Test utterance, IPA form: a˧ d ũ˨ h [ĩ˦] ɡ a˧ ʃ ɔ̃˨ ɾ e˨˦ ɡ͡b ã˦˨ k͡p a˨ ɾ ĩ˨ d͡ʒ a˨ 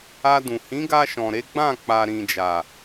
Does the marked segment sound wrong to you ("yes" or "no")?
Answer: yes